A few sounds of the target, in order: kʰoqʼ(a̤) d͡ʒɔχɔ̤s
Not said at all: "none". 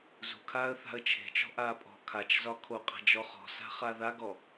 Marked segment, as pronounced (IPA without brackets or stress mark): a̤